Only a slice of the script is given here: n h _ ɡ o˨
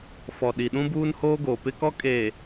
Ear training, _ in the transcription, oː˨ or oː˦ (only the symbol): oː˦